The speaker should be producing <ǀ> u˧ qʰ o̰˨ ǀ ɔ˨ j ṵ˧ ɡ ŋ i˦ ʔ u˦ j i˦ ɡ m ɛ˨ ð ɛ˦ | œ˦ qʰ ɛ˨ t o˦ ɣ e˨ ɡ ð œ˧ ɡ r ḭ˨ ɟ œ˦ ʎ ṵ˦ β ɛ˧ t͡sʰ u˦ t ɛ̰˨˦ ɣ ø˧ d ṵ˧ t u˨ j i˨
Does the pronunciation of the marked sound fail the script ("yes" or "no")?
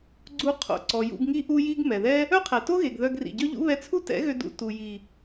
yes